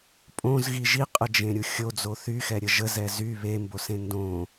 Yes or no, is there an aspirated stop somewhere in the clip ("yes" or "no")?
no